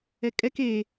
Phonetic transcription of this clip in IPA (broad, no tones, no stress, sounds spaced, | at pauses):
ɛ kʼ ɛ k e